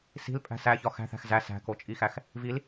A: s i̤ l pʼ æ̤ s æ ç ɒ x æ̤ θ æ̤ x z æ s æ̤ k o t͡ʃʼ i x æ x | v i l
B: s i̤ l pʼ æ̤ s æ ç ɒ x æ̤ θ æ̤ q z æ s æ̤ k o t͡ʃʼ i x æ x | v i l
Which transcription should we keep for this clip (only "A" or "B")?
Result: A